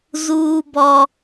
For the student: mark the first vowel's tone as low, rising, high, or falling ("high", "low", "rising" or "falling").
high